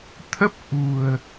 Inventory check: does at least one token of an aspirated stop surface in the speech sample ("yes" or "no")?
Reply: yes